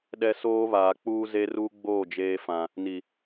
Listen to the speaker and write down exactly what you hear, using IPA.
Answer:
ɗɛ˦soː˦ βaː˨k͡puː˦ ze˦ruː˦ɡ͡boː˦˨ d͡ʒeː˦ fã˨ | ni˨

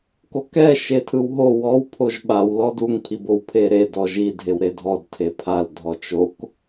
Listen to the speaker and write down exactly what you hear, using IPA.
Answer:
kokɛ ʃetʰɯwɦo wɔw pʰoʒɓaw lɔduŋ pʰibowpʰeɾe dɔʒi dʱewɾedʱɔd tʰepʰal dʱɔt͡ʃok

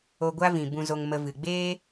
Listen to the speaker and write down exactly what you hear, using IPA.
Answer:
o˧ɡʷa˦vĩ˨ bũ˧zo˧ŋ mə˧ vɨ˨ɡ͡beː˦

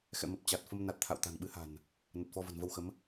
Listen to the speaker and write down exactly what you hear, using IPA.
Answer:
xɛ̰˧˨mə˨˩p̚ t͡ɕa˨˩t̚ fə˧mna˨˩t̚ t̪ʰa̰˧˨wt̪a̤˨˩nɓɨ˨˦ha̤˨˩n | nə˨˩t̚fɔ˧və̤˨˩n və˧wxə˨˦m

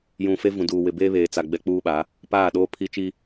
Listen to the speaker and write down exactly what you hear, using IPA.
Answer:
jũ˨ fe˦vũ˨duː˨ wɪ˨beː˦βeː˨t͡sa˨ ɡ͡bɛ˦k͡puː˦ɓa˨˦ | paː˦˨ ɗoː˦pʰi˦t͡ʃi˦

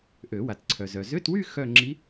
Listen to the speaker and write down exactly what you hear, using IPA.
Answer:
ʔø˨˩˦ wa˨tǀʰœ˨ zœ˨ zø˧˥˧twy˥˧ xœ˥˧ ŋ͡ǁi˧˥

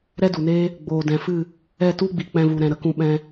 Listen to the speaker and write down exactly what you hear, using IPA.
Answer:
ɾɛ˦du˨neː˦ | ɡ͡boː˨dɛ̃˨fɨ˦˨ | ɛ˦˨tu˦ɡ͡bi˨ k͡pɛ̃˧vu˨ɾɛ̃˨ ɾə˧kũ˧ɓɛ̃˧

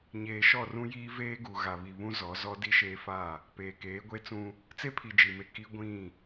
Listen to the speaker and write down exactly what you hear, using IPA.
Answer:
ɲeː˨ʃɔ˦˨rũ˦jiː˦ veː˦ɡu˨ɣa˨βi˨ βũ˦zɔ˨˦zɔ˦ di˦ʃeː˦fa˦˨ | peː˨keː˨˦ɡʷe˦t͡sũ˦ | t͡se˦pʰi˨ d͡ʒi˨me˦ ki˦ ɡʷĩ˦˨

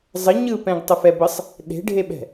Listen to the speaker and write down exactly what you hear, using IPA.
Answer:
zˤə ɲɯpɛ̃ɡ tˤəfɛbəsˤ | ɗe̤ɖʱeɓɛ̤

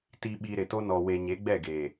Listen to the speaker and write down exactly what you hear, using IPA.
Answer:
ti˨ɓi˨ ɾɪ˨to˦ nɔ˨we˨ɲe˨˦ɡ͡bɛ˦˨ ɡeː˨

